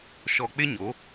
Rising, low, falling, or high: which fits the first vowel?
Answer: low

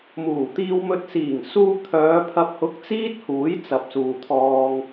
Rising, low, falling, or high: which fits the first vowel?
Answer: low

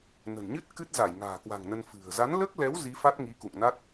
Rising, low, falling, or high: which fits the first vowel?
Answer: low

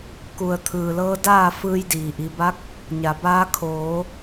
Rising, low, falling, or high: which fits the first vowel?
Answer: low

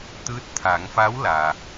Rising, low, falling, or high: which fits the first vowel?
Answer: rising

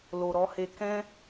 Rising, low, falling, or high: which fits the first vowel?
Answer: low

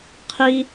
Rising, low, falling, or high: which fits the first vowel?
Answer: high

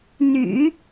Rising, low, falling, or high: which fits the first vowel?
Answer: low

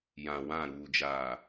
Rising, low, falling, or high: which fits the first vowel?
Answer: low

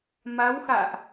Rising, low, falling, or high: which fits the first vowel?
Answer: rising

